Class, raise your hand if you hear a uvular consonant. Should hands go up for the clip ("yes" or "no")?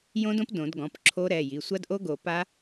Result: no